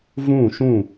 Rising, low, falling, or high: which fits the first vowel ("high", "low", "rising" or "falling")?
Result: falling